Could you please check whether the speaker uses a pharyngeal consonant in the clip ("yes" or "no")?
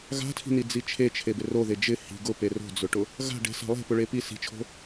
no